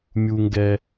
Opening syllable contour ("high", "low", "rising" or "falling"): high